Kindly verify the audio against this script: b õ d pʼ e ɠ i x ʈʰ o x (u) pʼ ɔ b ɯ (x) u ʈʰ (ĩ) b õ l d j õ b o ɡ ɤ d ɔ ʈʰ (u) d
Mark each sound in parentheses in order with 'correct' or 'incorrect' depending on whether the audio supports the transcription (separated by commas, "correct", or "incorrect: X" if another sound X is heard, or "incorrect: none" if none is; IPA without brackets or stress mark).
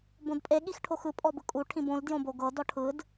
incorrect: ɯ, incorrect: kʼ, correct, incorrect: ɯ